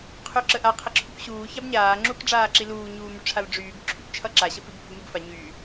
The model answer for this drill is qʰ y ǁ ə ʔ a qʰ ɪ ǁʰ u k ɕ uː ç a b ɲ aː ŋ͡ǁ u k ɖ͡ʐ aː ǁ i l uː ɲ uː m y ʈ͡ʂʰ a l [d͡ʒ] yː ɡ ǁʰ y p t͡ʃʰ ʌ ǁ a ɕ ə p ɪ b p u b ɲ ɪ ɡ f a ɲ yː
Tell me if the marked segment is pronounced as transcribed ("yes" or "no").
no